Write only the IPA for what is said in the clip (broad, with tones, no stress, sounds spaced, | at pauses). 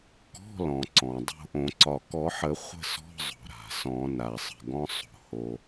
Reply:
k ɔ̤˧˥˧ l ɔ̃˩ ǀ ɔ̃˩ dˤ o̤˥˨ ʔ õ˨˩˦ ǀ ɒ˧˩ k ɔ˨˩˦ ħ ə˨˩˦ χʷ ə̤˥˨ s ɔ̤˧˥˧ zˤ o̤˩ ɾ a̤˩ s ɔ̃˨˩˦ n a˩ sˤ ə̤˧˩ ɡ ɔ̃˧˥˧ sˤ o̤˩ h o˩